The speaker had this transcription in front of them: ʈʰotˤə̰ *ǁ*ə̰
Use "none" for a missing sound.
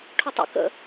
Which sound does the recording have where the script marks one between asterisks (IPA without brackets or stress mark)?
k